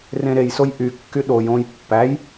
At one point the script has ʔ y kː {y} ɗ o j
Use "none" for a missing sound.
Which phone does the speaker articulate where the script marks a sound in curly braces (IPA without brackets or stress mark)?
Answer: y